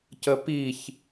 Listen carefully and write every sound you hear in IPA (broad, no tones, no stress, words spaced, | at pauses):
cəpiç